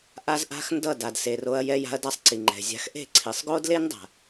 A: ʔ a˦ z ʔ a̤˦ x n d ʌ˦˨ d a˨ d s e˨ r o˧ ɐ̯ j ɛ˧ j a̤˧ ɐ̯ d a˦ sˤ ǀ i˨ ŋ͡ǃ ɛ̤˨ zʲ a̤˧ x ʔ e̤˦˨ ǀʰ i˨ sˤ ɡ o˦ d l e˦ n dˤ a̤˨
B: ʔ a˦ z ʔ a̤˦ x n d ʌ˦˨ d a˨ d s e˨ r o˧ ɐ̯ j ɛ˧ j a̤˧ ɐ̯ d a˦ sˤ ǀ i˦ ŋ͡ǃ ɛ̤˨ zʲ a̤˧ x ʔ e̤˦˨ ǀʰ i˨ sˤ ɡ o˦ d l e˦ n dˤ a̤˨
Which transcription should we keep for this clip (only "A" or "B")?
A